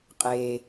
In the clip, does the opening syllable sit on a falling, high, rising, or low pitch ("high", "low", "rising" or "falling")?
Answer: low